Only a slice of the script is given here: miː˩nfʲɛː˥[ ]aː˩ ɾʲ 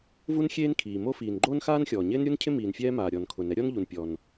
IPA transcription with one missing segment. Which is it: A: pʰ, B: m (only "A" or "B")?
B